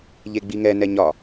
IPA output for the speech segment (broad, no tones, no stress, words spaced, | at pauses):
ʎeɡ͡biŋɛnɛ ɲɒ